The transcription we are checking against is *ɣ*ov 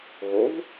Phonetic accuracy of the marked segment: correct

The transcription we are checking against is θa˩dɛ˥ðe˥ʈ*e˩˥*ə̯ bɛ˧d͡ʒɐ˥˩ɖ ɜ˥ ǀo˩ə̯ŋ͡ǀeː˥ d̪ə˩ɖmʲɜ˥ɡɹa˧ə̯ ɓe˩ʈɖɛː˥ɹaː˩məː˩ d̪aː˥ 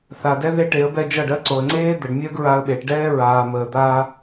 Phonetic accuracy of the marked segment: correct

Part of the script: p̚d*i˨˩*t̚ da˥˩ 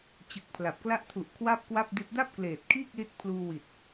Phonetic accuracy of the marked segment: incorrect: i˦˥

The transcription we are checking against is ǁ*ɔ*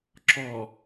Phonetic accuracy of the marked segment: correct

